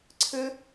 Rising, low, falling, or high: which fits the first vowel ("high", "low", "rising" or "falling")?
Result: high